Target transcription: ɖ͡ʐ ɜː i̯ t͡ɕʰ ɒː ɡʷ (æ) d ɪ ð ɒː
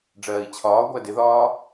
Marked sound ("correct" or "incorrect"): correct